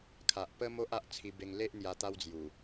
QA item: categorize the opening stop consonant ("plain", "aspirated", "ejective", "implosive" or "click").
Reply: aspirated